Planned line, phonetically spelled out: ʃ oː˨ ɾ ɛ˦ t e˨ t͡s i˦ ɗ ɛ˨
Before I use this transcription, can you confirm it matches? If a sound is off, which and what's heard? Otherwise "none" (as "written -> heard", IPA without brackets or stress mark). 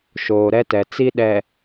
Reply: e˨ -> ɛ˨